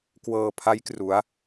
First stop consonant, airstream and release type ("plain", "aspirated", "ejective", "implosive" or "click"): plain